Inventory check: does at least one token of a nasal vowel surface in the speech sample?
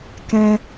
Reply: yes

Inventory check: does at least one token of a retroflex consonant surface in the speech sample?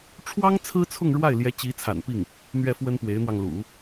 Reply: yes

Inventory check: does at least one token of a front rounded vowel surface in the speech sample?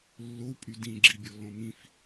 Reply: yes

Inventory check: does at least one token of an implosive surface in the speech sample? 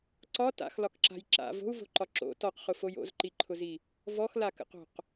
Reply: no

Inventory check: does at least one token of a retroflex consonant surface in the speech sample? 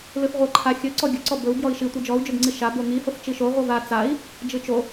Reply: no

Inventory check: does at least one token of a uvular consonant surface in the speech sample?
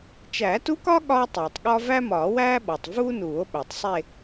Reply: no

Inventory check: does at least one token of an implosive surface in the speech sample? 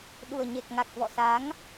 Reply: yes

